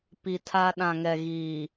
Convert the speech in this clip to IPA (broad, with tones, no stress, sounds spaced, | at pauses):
p i˨ tʰ a˦ ɗ ã˨ ŋ ɛ˨ ɣ iː˨